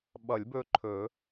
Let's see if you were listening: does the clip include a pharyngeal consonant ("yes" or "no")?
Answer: no